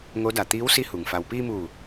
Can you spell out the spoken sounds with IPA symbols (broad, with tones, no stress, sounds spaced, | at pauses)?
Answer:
ŋ o˧˥ d a˧˩ t̪ iː˧˥ w s i˧˥ h u˩ ŋ f a˩ w p iː˧ m uː˧˩